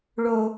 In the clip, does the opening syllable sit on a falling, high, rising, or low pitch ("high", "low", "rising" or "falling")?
high